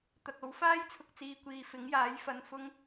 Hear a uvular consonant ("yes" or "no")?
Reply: no